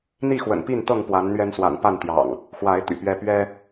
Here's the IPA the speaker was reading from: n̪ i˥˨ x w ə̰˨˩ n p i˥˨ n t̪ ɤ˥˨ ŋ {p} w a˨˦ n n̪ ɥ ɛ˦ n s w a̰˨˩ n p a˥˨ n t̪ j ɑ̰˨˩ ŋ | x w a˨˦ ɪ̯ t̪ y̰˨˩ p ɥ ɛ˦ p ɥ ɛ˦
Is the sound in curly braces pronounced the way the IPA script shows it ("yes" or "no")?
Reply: yes